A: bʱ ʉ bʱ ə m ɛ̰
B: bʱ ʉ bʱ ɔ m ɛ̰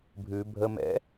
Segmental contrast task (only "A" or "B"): A